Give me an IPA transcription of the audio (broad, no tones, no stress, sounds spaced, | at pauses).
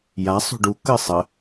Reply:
j a sˤ ṳ ɖ u k ə sˤ ə